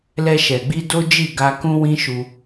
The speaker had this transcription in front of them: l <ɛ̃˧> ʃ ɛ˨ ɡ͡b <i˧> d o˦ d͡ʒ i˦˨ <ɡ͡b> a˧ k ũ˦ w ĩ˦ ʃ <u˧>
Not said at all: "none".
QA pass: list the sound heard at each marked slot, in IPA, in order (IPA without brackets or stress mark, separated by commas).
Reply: ɛ˧, i˧, ɡ, u˧